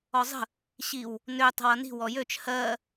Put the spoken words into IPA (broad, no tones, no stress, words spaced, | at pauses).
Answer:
ɔzˤə̤ | ɕiw | nø tˤə̤wʌni̤ wɔjøt͡ʃ hɜ